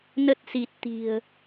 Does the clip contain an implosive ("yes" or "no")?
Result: no